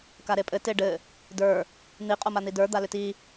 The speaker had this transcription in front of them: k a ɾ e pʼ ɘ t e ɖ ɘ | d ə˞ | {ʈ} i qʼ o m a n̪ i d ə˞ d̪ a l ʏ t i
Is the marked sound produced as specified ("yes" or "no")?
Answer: no